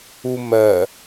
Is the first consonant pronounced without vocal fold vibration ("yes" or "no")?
no